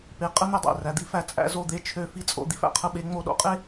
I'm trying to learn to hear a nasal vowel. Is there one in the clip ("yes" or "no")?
no